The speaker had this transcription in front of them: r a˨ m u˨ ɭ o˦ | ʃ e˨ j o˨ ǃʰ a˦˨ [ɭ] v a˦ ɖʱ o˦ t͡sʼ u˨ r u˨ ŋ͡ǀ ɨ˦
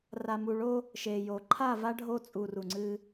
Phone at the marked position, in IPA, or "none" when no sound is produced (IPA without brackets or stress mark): none